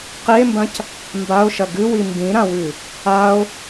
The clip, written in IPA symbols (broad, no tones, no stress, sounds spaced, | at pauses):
q i e̯ m b ɐ̃ c | m b a o̯ ʃ ɐ ɡ ɨ w i m b ĩ ɾ ã w ʉ | a o̯